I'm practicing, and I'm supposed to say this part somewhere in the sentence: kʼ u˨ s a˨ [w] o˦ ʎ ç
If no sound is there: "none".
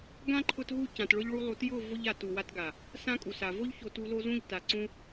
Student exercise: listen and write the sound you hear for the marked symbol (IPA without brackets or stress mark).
v